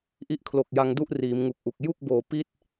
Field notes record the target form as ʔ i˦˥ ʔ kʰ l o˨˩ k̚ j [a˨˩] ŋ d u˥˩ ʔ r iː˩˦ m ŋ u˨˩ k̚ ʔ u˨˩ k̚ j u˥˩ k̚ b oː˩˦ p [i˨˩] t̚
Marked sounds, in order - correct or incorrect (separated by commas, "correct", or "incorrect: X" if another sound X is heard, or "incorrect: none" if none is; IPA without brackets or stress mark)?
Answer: incorrect: a˧, incorrect: i˥˩